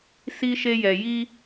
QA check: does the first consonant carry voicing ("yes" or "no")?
no